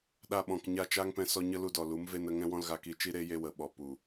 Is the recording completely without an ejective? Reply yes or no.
yes